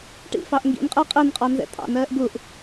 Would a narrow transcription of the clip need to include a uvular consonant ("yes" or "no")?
yes